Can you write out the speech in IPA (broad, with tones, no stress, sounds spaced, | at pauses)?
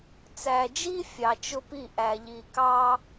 t͡s æ˨ d͡ʒ i˦ fʲ ɑ˨ t͡ʃ ʊ˦ p i˦˨ ʔ æ˨ ʎ i˨ k ɑ˦